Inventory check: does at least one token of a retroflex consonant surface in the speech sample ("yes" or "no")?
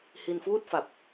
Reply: no